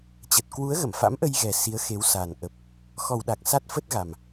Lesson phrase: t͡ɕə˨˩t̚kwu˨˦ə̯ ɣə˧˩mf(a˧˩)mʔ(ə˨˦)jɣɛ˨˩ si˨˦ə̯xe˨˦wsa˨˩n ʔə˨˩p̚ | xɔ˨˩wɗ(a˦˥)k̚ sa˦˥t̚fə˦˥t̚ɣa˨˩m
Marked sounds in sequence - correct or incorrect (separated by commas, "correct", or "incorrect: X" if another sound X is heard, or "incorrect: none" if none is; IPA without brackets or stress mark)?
incorrect: a̰˧˥, incorrect: ə˧, incorrect: a˨˩